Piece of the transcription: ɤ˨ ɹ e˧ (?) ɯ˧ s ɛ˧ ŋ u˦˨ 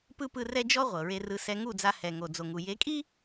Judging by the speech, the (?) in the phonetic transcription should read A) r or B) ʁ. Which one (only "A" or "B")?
A